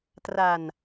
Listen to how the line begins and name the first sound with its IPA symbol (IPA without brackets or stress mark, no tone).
t